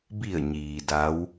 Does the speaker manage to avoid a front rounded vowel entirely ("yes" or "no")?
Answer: yes